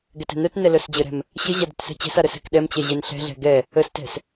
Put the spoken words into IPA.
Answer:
ɡɛtɛ̤nœtnɛ lœsd͡ʑəɾɛ̤m | ɕəʑad ə̤tsɛ̤t͡ɕɛ̤sa ɾəsɛ̤kɗɛmt͡ɕɛ ʑɛnɬɛ̤ɮɛ̤ ɡɛ | əstɛ̤s

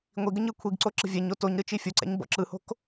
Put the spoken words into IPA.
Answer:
ŋʷiɡəɲ ɯkʷʰiɡǀo ǁə̤vʲɛɲo toɲɾɯ t͡ʃifʲoǀɛ̰ɲ bɔ̰ǁɯho̤k

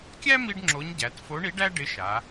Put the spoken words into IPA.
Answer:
kʲæ˥ mi˥ɖŋ͡ǁo˧˥ɲɟæ˩˧t fo˧˥ɳi˧˥ɖæ˥ ɖɪ˧˥ʃa˩˧

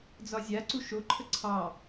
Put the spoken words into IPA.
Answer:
d͡zɒzʲaǀu ʃoǃʰə ǀʰɑ

